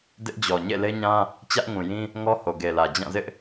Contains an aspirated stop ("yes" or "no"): no